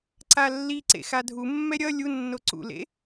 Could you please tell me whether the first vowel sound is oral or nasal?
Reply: oral